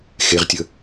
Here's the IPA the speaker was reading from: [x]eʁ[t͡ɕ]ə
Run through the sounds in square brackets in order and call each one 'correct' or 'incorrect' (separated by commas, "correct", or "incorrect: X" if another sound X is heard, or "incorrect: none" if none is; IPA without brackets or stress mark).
correct, incorrect: tʲ